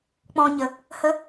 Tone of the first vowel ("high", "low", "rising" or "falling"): high